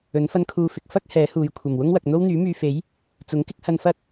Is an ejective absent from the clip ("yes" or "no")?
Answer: yes